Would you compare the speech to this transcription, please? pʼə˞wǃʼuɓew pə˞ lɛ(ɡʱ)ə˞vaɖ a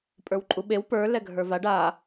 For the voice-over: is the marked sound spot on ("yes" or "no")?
yes